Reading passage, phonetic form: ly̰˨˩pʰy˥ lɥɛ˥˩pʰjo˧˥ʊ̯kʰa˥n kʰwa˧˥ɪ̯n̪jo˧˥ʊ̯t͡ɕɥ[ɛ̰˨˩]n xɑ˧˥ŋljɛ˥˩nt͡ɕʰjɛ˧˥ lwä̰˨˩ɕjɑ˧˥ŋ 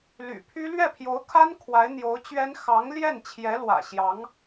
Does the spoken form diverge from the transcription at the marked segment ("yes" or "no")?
yes